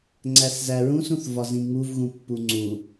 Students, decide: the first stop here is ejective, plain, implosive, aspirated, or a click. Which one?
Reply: click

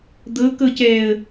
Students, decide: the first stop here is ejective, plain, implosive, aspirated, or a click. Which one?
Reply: plain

